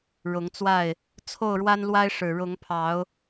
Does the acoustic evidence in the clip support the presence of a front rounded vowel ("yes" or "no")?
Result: no